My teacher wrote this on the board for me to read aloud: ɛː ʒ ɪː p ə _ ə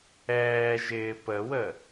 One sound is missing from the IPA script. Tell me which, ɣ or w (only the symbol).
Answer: w